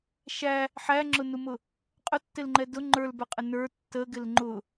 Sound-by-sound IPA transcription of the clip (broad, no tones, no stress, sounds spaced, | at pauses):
ʃ æ | ħ æ ŋ͡ǁ ʊ n u m ʊ | qʼ ʊ tː ɪ l ŋ͡ǃ ɛ d ʊ ŋ͡ǃ ə˞ l b ə˞ qʼ ɪ n ə˞ tː ə ɡ ɪ l ŋ͡ǃ ʊ